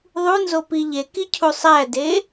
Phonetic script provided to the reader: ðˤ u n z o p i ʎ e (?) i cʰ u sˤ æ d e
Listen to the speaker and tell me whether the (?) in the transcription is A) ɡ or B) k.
B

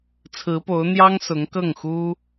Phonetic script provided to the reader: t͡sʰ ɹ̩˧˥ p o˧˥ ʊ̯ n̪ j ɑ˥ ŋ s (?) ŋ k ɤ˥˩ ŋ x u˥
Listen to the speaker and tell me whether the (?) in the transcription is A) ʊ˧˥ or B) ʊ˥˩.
A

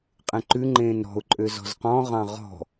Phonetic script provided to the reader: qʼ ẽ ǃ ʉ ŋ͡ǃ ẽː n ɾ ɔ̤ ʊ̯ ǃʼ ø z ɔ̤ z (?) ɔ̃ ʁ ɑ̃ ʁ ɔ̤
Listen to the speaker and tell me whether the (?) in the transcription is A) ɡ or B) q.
B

